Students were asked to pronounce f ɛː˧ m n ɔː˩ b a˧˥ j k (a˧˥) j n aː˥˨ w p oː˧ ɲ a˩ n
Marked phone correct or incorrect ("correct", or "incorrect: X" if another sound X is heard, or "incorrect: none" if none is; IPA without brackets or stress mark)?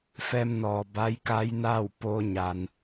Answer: correct